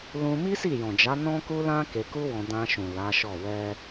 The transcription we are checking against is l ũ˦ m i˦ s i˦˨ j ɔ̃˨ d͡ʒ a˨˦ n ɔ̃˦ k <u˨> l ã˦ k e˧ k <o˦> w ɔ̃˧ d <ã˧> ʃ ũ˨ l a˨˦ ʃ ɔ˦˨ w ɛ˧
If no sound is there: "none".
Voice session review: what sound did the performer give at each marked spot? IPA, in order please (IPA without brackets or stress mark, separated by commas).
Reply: u˦, u˦, ã˧